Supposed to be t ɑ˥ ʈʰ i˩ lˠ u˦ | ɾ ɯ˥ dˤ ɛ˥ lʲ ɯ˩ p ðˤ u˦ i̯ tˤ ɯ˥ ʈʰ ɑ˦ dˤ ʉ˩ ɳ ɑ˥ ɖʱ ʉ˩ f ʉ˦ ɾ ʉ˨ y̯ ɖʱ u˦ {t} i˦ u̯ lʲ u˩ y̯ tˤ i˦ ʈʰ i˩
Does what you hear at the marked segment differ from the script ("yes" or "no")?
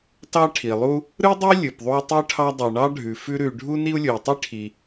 yes